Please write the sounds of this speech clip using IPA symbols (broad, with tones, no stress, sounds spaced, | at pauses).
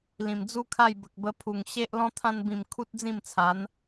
l ĩ˨˩ m d͡z u˦ kʰ a˥˧ j b ə˨ k̚ b ə˧ pʰ u˨˩ ŋ ɕ e˦ ʔ l ɔ̃˧ t̪ʰ ã˧ n b ĩ˨˩ m kʰ u˦ t̚ d͡z ĩ˥˧ m t͡sʰ a˨˦ n